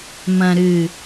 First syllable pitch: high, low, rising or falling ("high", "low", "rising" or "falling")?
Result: low